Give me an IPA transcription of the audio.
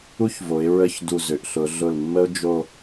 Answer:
u˥ ç v o˩˧ ɪ̯ ɹ ə˥˧ ç d u˧˩ z ʏ˩˧ ʔ ɬ ʊ˩˧ ɮ ʊ˧˩ l mː ə˥ ʊ̯ d͡ʒ o˥˧

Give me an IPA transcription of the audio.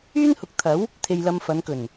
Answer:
yː˥ n h ʊ˨˥ k̚ t̪ʰ ɐ˨˥ w | t̪ʰ e˧ j l ɐ˧ m f ɐ˨˧ n k ɵ˨˩ n

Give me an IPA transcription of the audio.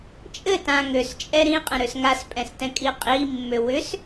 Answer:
t͡ʃʼ ɘ t ã ŋ ø s t͡ʃʼ ɛ ɾ ĩ qʼ ə̃ ɾ ø s ŋ a s pʼ ɛ̃ s t ɛ̃ kʼ i qʼ i mː ø w ʏ s

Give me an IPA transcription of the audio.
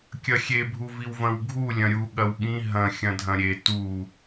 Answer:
kʲ ɐ xʲ e bʱ u v i w v ɐ̃ w ɡʱ u lʲ ɐ̃ ɾʲ u ɠ ɐ w ɠ ĩ ɦ ɐ̃ xʲ ɐ̃ dʱ ɐ̃ ɾʲ e t u

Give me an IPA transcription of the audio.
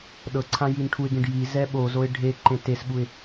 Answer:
ɗ ɤ ǀʰ ã j i n ʈʰ u ɪ̯ ɡ ẽ ɖ j i z ɛ ɓ o z o ɪ̯ ɖʱ e ǃ ẽ t e s ɓ u ɪ̯

